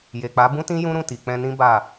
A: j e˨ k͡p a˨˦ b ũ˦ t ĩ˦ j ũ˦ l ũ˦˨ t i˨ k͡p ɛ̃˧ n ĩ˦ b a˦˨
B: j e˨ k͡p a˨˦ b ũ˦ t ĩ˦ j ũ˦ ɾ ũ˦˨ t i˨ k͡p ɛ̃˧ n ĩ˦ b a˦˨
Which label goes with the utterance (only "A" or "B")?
B